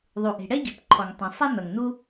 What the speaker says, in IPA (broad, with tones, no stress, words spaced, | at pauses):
ðˤu˩ʔe̤˩ɽɛ˥ɟi̤˩p ǃʰɔ˩ŋtˤɛ̃˩ sˤɛ˥n̪ʌ˩ŋn̪u˥